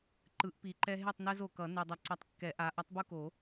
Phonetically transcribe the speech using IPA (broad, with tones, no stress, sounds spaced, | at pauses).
ǃ ɯ˨˩˦ ʔ p i˨˩˦ ǃ ɛ˦ ɦ e˥˨ tˤ n ɛ˦ z o˨ k ʌ˨˩˦ n e˨ dˤ ʌ˨ ǀ ʌ˩˥ tˤ kː ɛ˨˩˦ ʔ a˩˥ ʔ ʌ˩˥ tˤ b u˦ k o˨˩˦